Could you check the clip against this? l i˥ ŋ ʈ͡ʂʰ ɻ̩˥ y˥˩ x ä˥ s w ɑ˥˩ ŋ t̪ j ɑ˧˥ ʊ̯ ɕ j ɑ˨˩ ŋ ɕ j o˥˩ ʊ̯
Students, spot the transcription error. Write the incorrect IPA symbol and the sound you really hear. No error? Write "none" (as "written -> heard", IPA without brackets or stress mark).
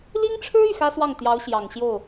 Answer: none